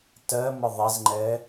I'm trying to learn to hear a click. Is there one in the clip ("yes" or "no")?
yes